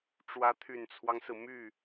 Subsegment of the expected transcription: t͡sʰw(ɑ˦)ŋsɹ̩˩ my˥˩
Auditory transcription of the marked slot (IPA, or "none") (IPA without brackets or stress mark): ɑ˦